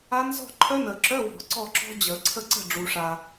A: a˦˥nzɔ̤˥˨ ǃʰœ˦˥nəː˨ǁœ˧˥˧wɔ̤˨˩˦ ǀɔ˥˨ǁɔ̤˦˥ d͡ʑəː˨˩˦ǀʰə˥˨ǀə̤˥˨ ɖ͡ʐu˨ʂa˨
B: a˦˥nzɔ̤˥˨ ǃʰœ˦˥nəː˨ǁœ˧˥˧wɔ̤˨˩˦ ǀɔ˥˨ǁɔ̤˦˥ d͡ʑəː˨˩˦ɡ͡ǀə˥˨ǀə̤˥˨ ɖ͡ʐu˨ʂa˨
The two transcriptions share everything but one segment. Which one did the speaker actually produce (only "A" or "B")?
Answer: A